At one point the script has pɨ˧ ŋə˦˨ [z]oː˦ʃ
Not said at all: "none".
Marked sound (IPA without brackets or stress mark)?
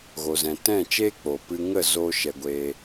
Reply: z